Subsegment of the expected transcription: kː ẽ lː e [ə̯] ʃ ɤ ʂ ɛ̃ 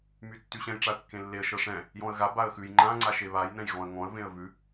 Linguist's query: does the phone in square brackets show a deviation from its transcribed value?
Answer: no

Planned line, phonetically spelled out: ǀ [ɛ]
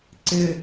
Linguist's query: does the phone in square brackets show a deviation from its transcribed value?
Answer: yes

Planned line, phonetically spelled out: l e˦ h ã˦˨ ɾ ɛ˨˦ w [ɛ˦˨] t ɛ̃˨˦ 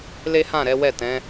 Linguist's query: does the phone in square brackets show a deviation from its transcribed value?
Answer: no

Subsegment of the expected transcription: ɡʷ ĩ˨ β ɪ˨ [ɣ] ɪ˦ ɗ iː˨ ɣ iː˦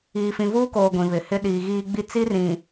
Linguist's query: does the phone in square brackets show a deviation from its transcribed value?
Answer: yes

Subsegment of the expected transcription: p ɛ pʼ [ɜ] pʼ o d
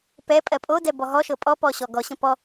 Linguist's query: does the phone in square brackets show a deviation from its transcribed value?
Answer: no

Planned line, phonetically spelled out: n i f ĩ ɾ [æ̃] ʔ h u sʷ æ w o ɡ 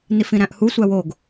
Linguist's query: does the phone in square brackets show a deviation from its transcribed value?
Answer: no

